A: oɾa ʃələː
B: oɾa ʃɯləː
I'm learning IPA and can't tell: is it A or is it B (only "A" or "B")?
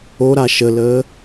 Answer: A